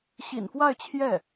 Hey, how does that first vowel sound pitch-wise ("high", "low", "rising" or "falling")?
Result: low